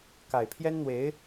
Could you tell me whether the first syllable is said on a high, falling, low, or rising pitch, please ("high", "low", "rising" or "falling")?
low